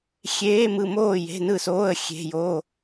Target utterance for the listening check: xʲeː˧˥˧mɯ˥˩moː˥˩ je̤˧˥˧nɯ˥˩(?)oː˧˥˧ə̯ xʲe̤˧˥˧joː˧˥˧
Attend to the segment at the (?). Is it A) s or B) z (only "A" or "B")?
A